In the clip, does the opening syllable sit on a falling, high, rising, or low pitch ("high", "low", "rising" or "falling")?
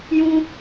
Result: high